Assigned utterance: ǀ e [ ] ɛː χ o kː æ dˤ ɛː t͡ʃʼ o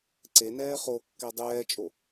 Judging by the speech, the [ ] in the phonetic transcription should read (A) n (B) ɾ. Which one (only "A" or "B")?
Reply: A